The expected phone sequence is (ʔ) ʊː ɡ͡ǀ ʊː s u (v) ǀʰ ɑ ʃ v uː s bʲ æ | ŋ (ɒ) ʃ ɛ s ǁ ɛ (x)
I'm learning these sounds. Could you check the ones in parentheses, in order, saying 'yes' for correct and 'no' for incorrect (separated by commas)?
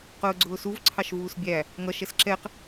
no, yes, no, no